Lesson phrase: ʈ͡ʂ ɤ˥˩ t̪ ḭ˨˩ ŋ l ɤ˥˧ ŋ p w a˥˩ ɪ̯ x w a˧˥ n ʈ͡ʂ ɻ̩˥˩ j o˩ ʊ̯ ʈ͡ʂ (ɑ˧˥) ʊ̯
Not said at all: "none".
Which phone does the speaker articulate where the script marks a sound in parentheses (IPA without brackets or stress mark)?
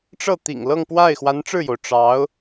ɑ˧˥